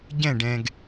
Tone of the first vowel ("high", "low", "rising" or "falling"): falling